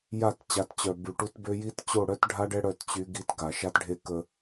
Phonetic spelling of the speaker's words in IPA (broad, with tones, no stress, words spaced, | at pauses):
ja˦˨t t͡ɕa˨˦tt͡ɕœ˨ by˨ʈu˦tbø˦ ji˦tt͡ɕo˦˨ ɽœ˦tɖʱa˦ɖɛ˦ ɽœ˦tt͡ɕy˦ɡi˦t ɡa˨ ʃa˦tɖʱe˦ kə˦